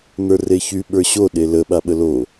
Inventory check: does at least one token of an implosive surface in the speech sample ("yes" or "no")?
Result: yes